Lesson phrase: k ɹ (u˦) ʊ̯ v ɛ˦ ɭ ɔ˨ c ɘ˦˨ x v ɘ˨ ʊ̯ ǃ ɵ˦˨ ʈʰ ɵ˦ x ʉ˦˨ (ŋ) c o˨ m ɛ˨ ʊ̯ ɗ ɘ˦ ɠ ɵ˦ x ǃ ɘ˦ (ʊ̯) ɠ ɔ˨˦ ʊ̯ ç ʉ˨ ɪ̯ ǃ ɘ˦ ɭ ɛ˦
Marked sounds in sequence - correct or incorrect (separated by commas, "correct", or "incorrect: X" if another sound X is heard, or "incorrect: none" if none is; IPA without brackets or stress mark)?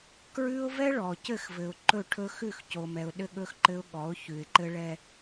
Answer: incorrect: ʉ˦, incorrect: x, correct